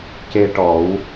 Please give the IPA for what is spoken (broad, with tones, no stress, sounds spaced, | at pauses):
c e˧ ʈ ɔ˨˩˦ w